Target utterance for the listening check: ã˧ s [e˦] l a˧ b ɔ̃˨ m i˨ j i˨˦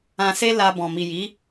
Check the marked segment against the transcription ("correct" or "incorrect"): correct